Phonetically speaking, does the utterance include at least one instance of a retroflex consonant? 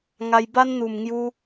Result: no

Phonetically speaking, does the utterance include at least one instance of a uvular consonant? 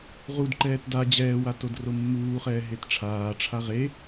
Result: yes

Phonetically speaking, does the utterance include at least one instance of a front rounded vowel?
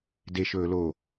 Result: no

